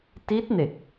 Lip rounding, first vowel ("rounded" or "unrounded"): unrounded